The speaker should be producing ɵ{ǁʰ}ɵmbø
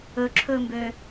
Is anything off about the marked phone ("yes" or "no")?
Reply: no